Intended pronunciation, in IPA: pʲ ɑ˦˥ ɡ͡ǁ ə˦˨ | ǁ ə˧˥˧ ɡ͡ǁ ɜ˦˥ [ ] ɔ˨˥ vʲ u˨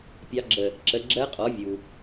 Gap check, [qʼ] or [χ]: qʼ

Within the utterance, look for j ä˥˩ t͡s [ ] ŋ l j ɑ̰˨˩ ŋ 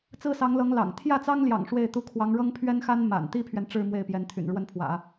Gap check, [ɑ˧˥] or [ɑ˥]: ɑ˥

